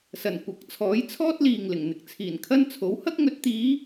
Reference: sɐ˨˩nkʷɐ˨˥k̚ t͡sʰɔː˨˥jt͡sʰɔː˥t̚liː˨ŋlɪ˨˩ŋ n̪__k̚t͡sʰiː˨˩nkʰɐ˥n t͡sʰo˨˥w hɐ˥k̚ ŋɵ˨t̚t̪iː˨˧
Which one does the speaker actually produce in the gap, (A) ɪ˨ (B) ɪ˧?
A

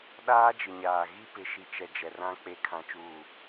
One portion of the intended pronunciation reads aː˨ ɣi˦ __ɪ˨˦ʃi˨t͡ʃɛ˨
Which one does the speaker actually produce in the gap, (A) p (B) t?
A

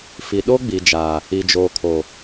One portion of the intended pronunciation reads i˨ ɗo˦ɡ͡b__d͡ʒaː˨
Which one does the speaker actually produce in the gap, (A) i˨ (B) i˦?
A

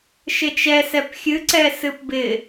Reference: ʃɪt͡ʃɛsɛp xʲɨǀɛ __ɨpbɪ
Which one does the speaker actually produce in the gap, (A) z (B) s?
B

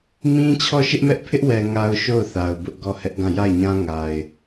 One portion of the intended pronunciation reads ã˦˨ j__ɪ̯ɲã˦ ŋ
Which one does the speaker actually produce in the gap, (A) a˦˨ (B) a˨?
A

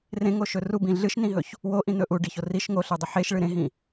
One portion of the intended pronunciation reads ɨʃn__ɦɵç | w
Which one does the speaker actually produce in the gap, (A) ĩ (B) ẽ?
A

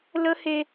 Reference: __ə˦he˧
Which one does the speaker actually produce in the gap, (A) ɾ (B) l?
B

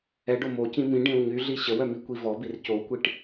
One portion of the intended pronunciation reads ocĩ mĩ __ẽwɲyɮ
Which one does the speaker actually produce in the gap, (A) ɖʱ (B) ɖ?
B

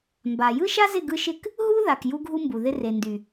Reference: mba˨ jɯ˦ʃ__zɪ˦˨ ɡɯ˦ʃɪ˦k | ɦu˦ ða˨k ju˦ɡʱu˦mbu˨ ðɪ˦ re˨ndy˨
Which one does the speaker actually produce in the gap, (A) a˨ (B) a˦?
B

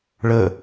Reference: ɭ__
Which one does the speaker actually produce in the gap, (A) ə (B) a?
A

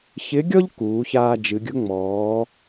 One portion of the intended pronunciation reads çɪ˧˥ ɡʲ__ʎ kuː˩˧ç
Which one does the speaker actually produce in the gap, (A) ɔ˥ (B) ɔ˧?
A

